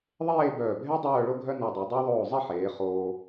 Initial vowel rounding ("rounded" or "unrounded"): unrounded